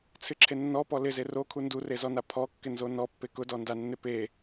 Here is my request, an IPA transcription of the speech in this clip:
t͡sʰ ɪ ǁʰ e nː ɔ p ɔ l ɪ z e r o kʰ u n d u r e z ɔ n a pʰ ɔ kː ɪ n z o n ɔ pː e k ʊ d ɔ n d a nː ɪ p e

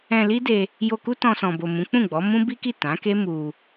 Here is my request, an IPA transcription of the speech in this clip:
ɛ̃˧ l i˦ d e˧ | j o˧ k u˦ t ɔ̃˧ s ɔ̃˨ b o˨ m ũ˨˦ k͡p ũ˦˨ ɡ͡b ɔ˨˦ m ũ˦ b i˦ k i˦˨ t ã˨˦ k e˦ m u˧

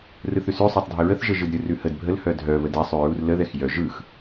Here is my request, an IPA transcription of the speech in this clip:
r ɯ θ ʉ s ʉ sˤ œ tˤ dʱ ə ɹ ə θ ʒ ə ʒ ɯ d ɾʲ ɯ r ʉ h ə d bʱ ə l h œ dʱ œ β ə d ɛ sˤ ʉ ɹ u r l ə ð ɛ x j œ ʒ ɯ x

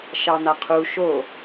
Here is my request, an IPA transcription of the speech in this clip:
ʃ ɑ n̪ a qʰ u ʃ o

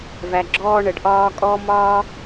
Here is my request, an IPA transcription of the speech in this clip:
v æ˦ ɡ͡ǁ ɔː˥ ɳ ə˦ ɖ ʔ ɒː˦ kʼ ɔ˦ m ɒː˥

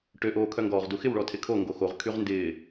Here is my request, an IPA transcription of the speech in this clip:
ʈ ø ʔ oː kʰ œ ŋ ɡ ɔː ʁ d u x ɪ w ɭ ɔ tʰ ɪ kʰ o ŋ ɡ o x o ʁ kʰ y ʁ n d ɪː

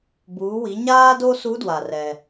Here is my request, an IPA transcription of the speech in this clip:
b uː˩˧ w i˩˧ ɲ aː˥ d o˥ s u˧˥ d w a˩ r ɛ˩

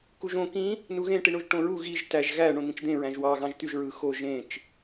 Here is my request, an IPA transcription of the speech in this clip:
k u ʒ õ k ĩ | n u ɣ ẽ ʈ i ɳ o ʒ ʈ õ ɹ u ɣ i ʒ t æ ʒ ɣ æ ɳ õ n̪ ĩ t͡ʃ d̪ ẽ ɹ æ̃ ʒ w ɑ ɣ ɑ̃ ʒ t̪ y ʒ ɹ ɯ x o ʒ ẽ t͡ʃ

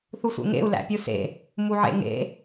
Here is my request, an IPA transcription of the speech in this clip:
θ u sʷ ḛ ŋ ḛ u̯ l æ̰ pʲ u s ḛ | m u ʕ ḛ ŋ ḛ

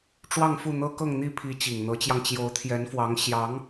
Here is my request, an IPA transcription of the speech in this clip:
ʈ͡ʂ w ɑ˥˧ ŋ f u˥˩ n̪ ɤ˥ k ɤ˥˧ ŋ n̪ i˥˩ pʰ i˧˥ t͡ɕ i˨˩ ŋ n̪ ɤ˧˥ t͡ɕ j ɑ˧ ŋ t͡ɕ j o˧˥ ʊ̯ t̪ʰ j ɛ˧˥ n f w ɑ˧˥ ŋ ɕ j ɑ˧˥ ŋ

